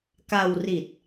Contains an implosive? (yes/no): no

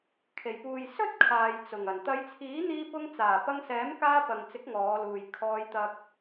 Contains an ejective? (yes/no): no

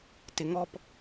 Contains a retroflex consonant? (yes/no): no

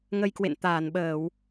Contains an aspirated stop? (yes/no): no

